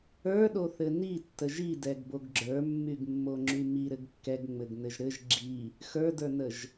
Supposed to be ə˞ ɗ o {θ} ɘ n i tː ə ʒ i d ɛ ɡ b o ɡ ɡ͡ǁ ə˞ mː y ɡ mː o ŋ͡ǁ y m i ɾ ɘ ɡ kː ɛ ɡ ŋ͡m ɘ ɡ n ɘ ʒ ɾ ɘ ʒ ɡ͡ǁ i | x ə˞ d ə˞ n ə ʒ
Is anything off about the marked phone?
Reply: no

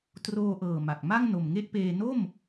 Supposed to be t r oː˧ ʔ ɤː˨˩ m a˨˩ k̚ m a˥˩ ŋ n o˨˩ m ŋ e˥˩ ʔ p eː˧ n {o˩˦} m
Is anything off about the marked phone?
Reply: yes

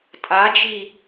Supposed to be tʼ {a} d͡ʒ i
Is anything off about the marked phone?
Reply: no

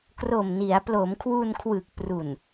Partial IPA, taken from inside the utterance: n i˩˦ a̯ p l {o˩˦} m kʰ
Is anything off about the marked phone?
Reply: no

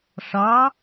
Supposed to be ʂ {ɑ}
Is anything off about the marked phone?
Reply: no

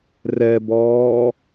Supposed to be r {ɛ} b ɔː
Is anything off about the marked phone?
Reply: no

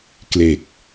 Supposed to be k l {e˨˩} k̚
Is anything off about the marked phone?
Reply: no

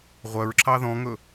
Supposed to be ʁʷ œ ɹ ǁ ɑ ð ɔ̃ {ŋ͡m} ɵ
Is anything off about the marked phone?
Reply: yes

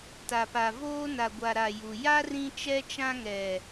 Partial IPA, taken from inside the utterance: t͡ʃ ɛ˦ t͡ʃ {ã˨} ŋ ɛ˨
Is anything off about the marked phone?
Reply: yes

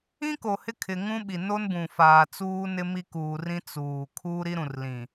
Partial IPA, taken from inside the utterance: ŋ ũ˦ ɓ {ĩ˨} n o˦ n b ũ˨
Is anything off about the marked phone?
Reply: yes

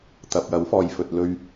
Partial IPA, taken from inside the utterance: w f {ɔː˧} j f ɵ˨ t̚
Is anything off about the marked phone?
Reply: yes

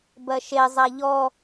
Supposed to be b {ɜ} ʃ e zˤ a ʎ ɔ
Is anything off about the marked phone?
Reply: no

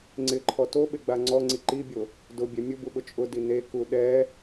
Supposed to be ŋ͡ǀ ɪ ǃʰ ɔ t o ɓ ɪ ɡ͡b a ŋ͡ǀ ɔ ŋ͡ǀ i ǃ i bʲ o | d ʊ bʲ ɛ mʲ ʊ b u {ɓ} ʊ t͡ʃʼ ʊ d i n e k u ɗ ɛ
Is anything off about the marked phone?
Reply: no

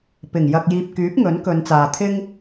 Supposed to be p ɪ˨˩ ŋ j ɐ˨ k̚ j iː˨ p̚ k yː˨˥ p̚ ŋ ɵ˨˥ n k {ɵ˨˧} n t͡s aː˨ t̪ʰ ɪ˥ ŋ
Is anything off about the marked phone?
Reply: no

